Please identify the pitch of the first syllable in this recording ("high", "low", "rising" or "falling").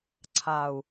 low